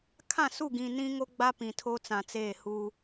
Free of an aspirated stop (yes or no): no